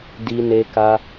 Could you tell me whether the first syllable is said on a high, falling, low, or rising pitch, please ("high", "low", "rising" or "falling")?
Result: high